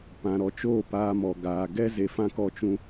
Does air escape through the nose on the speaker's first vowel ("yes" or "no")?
yes